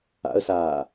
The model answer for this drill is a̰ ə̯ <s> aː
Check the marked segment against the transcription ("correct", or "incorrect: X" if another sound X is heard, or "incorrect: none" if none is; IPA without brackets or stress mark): correct